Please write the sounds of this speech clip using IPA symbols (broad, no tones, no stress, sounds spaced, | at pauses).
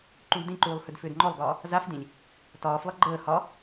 ǃ ũ ɡ d ĩ ǃ uː lˠ h ʏ d f ʏː d ŋ͡ǃ ɔ lˠ ɡ ɒː | z a f d ĩ lʲ | t ɒː f lˠ ə ɡ͡ǃ əː h ɒ